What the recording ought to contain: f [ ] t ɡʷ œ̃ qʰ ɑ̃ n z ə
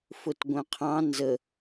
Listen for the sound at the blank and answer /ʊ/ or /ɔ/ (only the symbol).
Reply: ʊ